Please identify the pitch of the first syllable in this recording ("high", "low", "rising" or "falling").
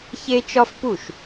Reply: high